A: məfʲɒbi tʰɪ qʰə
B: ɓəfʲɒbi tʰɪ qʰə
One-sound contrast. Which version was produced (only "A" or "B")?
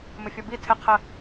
A